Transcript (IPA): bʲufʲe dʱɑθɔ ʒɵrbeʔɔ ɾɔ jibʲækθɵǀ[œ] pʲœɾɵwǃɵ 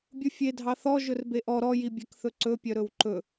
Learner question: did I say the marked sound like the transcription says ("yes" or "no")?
no